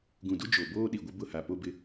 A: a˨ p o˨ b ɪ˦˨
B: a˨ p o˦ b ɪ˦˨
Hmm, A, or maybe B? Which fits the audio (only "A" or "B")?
B